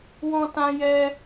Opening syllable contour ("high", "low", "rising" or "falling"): high